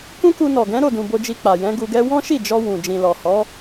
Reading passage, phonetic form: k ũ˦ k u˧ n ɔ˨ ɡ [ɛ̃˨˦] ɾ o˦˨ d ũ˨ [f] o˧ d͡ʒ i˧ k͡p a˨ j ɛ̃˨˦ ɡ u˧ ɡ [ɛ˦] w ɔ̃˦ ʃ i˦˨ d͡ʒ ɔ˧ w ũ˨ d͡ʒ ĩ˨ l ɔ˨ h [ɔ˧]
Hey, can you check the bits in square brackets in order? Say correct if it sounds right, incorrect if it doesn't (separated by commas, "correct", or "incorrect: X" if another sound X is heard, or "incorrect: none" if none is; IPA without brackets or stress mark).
correct, incorrect: b, correct, incorrect: ɔ˨˦